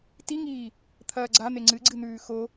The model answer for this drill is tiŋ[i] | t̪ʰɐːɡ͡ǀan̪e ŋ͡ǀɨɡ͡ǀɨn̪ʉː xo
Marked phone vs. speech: incorrect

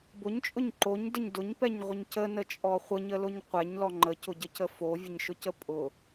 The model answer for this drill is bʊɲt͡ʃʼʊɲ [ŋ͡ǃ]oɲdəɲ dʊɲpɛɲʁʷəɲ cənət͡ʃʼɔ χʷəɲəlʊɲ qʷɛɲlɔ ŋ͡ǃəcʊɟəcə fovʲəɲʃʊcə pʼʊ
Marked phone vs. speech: incorrect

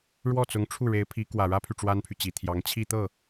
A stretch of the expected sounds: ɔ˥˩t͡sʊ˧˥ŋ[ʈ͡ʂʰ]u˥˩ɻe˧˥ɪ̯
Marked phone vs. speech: correct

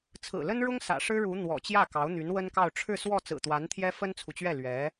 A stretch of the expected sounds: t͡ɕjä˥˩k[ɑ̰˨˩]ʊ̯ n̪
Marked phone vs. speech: incorrect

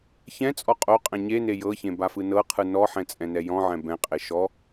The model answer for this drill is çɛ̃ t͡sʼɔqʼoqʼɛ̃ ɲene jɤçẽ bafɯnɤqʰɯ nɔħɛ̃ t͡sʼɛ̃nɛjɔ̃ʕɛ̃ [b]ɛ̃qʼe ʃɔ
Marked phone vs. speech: correct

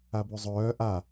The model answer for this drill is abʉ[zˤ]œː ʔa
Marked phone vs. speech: correct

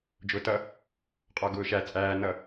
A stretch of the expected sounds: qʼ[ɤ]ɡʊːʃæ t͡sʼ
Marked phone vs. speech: incorrect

